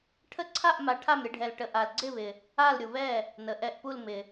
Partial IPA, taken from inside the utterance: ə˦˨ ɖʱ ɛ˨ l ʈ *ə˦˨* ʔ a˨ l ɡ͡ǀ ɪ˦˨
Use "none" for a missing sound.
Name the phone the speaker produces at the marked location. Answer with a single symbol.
ə˨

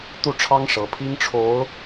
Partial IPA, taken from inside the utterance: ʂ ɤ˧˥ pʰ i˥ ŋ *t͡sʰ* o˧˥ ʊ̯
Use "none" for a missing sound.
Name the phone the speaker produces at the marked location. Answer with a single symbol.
ʈ͡ʂʰ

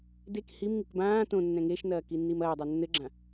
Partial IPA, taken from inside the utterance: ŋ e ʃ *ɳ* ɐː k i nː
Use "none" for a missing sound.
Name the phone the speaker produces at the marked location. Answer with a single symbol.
n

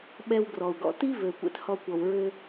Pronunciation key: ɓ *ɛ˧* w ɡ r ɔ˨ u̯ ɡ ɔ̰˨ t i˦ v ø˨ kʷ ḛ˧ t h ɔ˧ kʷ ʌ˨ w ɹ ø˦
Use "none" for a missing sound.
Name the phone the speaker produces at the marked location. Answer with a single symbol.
ɛ˧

